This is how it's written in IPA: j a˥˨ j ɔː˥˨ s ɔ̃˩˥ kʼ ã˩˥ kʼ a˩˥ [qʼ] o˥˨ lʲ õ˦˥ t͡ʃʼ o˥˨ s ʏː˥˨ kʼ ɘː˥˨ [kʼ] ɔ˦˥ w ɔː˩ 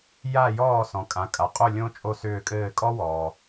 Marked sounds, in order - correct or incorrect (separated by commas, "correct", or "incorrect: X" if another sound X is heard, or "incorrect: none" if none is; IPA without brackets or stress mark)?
correct, correct